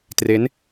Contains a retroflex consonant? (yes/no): no